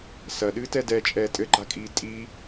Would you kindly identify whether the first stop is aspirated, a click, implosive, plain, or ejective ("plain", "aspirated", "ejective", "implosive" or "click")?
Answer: implosive